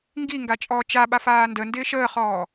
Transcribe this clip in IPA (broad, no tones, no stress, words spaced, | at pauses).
ŋɡiŋɡa t͡ʃʼɔːt͡ʃaɓaf aːndəndɪːʃ əːχɔː